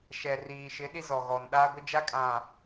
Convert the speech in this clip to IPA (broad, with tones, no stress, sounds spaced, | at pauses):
ʃ ɛ˨ r iː˨ ʃ ɪ˨˦ ɗ i˦ z ɔ˨ ɣ ɔ˨ n ɗ aː˦ ɡʷ ɪ˦ d͡ʒ a˦ kʼ ã˨